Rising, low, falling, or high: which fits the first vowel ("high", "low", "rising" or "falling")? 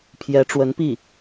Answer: rising